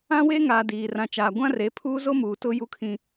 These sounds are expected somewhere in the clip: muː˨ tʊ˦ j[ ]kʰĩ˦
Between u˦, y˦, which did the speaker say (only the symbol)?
u˦